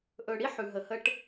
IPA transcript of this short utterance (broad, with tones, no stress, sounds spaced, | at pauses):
ʔ ɵ˨ ɽ i˦ ħ ʉ˨ ɦ ə˨ h ə˦ ʈ